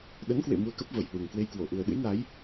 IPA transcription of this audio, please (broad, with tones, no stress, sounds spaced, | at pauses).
ɗ ə˨˦ n k w ḛ˧˨ m u˧ ə̯ k ə˦˥ p̚ v ə˧˩ j h w ɨ˨˩ ŋ k w e˧ j k w o˧˩ ʔ u˨˩ ə̯ ɗ ɨ̰˧˥ j n a˨˦ j